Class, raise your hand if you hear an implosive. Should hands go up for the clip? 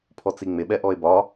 yes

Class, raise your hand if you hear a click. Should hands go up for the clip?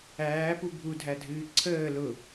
yes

